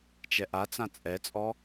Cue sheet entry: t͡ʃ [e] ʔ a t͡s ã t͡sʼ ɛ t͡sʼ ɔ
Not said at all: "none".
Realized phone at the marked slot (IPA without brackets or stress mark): ɛ